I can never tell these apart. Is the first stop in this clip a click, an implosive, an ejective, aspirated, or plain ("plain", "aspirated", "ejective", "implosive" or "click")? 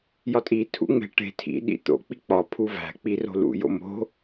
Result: ejective